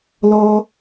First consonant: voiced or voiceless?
voiced